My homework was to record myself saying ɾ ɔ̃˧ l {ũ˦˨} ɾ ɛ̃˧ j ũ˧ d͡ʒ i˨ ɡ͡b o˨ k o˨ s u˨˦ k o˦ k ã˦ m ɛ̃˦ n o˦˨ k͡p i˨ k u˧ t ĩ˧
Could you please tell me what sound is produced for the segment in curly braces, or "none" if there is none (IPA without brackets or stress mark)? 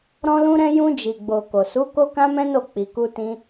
ũ˧